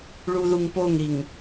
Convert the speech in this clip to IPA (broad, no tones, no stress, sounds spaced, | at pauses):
ɭ u ð u ŋ p o ŋ ɾ i ŋ